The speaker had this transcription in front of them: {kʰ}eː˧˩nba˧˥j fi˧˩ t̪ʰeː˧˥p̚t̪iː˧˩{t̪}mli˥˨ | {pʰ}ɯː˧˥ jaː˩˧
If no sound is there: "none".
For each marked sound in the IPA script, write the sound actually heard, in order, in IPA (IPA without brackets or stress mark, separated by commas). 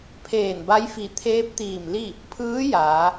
pʰ, none, pʰ